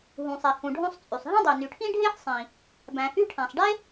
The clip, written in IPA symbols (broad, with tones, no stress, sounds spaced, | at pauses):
ɦ ũ˩ sˤ e˩ h ũ˩ ɖʱ õ˥ sˤ t͡sʼ y˩ sˤ ɦ ĩ˥ dˤ e˩ n y˩ ʈʰ ĩ˥ ɖʱ e˥ ħ sˤ ĩ˩ | b æ̃˩ h y˥ ʈʰ æ̃˩ sˤ ɖ e˥